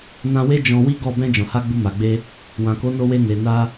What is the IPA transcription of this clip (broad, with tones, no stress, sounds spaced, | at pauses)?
n ã˧ w e˦ d͡ʒ ɔ̃˧ w i˦ ɡ ɔ˦˨ b ɛ̃˧ d͡ʒ ɔ̃˨ h a˧ ɡ͡b u˧ m a˨ ɡ͡b e˧ | w ã˨ k o˨˦ n o˧ w e˧ n e˨ n a˧